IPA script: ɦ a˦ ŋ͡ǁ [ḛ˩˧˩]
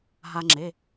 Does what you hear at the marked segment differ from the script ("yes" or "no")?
yes